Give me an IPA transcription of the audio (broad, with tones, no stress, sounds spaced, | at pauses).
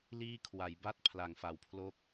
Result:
l iː˥˩ kʰ w a˩˦ j b a˥˩ t̚ pʰ l a˨˩ ŋ f a˩˦ w pʰ l o˦˥ k̚